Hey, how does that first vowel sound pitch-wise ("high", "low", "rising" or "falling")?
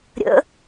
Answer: rising